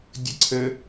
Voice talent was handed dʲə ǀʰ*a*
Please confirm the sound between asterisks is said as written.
no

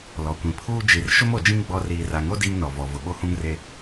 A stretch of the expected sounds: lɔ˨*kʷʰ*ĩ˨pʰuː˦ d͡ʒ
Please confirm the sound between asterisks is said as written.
no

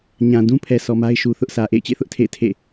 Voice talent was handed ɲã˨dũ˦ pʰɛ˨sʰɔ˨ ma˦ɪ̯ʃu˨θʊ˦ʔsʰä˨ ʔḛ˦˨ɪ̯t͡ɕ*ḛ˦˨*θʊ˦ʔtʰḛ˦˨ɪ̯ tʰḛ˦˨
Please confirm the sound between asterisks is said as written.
yes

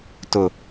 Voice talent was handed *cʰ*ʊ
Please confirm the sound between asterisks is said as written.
no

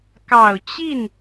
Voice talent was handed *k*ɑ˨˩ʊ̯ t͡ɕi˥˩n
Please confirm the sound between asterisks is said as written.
yes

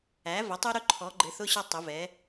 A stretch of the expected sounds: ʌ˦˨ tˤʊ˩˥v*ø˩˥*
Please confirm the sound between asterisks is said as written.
no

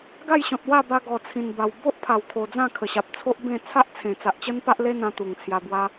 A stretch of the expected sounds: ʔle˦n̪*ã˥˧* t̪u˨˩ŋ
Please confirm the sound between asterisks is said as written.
no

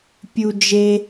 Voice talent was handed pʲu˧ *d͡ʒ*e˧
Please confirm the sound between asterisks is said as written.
yes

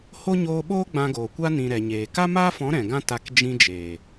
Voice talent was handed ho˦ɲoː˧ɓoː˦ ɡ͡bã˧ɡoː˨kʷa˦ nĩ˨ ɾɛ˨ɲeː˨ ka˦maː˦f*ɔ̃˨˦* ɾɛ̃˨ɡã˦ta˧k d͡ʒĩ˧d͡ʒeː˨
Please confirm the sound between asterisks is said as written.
yes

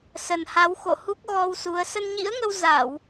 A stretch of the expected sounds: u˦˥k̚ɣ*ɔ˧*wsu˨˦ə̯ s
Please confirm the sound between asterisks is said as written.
yes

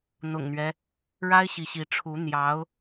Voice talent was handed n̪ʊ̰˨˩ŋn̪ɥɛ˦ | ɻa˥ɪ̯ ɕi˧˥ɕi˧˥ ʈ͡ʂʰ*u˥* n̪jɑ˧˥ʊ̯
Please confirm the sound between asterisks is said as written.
no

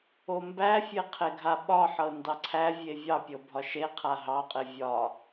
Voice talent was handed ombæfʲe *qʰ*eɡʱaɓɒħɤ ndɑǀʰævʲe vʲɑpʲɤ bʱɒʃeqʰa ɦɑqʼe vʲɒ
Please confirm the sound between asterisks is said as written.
yes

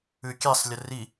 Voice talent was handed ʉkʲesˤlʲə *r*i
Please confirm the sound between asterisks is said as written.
yes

